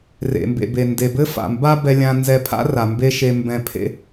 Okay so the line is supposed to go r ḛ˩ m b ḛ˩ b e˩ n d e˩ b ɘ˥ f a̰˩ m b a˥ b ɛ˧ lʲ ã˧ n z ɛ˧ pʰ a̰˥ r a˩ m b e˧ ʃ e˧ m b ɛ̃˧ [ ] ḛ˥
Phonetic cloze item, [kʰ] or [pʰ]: pʰ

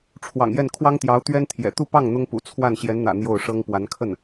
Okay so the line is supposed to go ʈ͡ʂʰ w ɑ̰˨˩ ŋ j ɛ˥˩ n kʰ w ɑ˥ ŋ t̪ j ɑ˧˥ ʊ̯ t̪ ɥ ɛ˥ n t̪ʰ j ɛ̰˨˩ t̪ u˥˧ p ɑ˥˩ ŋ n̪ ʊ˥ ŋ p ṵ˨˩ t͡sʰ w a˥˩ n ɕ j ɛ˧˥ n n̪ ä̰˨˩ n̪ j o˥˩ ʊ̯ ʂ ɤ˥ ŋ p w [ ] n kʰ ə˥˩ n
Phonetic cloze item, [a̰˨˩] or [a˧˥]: a˧˥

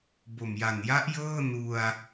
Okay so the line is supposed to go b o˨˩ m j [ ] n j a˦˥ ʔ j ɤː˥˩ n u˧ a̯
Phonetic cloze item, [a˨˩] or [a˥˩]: a˨˩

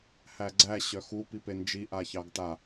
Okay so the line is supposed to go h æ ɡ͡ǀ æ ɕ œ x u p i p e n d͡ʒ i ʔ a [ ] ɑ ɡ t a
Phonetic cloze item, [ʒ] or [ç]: ç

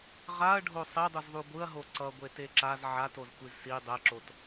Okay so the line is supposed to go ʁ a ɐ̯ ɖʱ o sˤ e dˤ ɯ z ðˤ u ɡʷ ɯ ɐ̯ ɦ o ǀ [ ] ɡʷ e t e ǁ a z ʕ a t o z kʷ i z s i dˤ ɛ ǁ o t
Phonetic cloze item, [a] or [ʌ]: ʌ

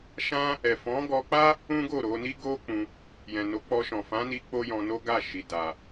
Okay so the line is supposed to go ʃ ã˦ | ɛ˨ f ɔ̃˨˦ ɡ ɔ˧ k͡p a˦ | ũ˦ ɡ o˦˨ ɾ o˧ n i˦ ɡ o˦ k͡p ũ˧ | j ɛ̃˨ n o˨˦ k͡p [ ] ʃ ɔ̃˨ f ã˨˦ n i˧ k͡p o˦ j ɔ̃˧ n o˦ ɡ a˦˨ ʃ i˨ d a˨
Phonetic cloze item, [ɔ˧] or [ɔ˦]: ɔ˧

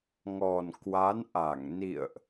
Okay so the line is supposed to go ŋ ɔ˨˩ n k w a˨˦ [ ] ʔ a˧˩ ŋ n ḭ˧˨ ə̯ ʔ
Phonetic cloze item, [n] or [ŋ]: n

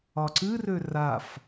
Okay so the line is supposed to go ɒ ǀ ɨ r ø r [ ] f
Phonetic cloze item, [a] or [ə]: a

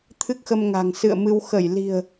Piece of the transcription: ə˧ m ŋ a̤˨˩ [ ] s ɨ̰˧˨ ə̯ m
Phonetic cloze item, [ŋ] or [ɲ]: ŋ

